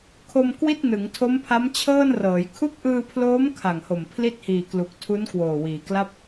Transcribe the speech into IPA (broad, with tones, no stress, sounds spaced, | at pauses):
kʰ o˧ m k w i˥˩ t̚ n ɯ˩˦ ŋ tʰ o˦˥ m pʰ a˦˥ m t͡ɕʰ ɤː˥˩ n r ɤː˩˦ j kʰ u˦˥ k̚ ʔ ɯː˧ pʰ l oː˦˥ m kʰ a˨˩ ŋ h o˨˩ m pʰ l i˥˩ t̚ h iː˨˩ k l u˨˩ k̚ tʰ u˦˥ n k w oː˨˩ w iː˩˦ k l a˥˩ p̚